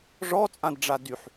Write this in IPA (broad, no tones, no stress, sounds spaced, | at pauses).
ʐ ɔ t͡sʼ ã d ɖ͡ʐ a d y ħ